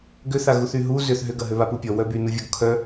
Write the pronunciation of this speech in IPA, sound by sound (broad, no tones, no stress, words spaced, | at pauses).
ɡʏθaɣuθ yɦu zʏθ ɦʏɡɐ ɦøβapupʲɔ wœbynuvʲɔɡ kʰœ